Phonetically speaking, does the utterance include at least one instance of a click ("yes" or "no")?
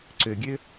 yes